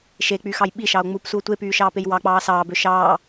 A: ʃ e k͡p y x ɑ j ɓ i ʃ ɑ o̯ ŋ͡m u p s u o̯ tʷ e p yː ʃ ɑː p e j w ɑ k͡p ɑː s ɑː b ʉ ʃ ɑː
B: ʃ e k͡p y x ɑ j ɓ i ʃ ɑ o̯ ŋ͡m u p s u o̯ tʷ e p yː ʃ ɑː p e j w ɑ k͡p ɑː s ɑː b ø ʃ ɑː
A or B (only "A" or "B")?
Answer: B